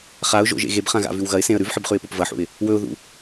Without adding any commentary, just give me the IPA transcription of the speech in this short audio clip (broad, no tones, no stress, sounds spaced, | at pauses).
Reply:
χ a ʊ̯ ʒ o̰ ʒ ḛ ɣ e b χ ã ɣ a̰ v ʉ w ɣ ɐ ɪ̯ s ẽ ə̯ ɾ ʉ v ħ ɨ b χ ʉ ɪ̯ p o p v ɐ ħ ṵ ɪ̯ | w ɵ ʊ̯ ð ṵ